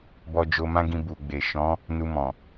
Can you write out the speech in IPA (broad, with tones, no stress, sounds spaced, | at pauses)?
b ɔ˧ d͡ʒ o˧ m ã˦ ɡ ĩ˧ b u˨ ɡ͡b e˨ ʃ ɔ̃˨˦ | n u˧ m ɔ̃˨